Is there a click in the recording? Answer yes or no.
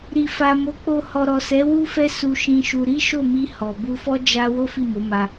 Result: no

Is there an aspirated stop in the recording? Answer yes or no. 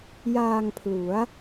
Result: yes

